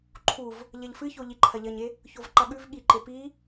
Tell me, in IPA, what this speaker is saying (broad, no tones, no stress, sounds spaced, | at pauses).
ǃʰ u v | ʎ ɐ ʎ f ɨ ç o ʎ i ǃʰ ɐ ʎ ɐ ɲ e | ç o v ǃ ɐ ɠ ʉ v ɠ i ǃ e p i